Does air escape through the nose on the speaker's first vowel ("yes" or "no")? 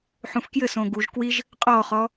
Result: yes